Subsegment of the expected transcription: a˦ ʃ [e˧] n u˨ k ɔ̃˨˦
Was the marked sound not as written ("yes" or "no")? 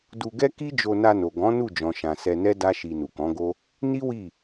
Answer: yes